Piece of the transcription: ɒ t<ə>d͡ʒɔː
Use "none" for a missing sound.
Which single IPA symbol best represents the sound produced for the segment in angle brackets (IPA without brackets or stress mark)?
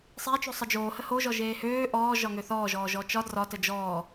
ə